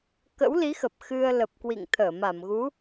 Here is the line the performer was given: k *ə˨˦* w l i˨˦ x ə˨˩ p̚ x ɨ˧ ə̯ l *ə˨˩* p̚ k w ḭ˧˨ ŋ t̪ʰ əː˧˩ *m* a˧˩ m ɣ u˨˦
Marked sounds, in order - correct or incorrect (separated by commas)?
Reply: incorrect, correct, correct